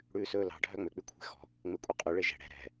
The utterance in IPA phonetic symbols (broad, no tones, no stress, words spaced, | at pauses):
ɽʉːsɵːlɑ̤ ɖʱœŋ͡mø k͡pykʷʰe̤xɔ̤ | ŋ͡mekʷʼeqʼʉ ɭeʒɛ̤ ɽɛ̤ ɾɛ̤